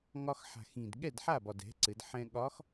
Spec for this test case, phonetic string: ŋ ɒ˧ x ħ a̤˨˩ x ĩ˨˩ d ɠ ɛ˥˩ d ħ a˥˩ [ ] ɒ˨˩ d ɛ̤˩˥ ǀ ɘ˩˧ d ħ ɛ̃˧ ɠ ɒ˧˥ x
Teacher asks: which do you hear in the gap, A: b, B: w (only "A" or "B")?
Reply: A